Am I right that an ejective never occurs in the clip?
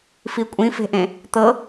no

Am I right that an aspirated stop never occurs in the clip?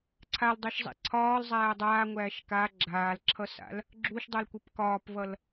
no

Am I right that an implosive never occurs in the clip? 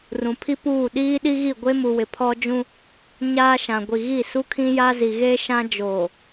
no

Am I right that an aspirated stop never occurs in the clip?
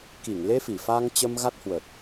yes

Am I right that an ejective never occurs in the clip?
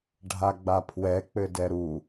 yes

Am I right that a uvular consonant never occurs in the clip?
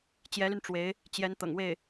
yes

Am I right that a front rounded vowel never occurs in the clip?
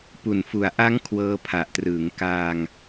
yes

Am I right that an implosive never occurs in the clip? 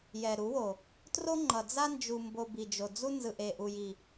yes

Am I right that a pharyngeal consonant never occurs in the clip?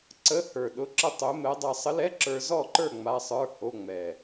yes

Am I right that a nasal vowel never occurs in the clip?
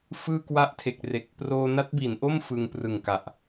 yes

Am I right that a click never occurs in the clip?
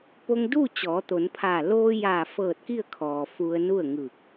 yes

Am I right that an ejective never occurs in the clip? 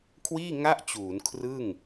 yes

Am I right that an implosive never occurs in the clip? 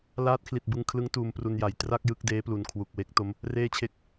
yes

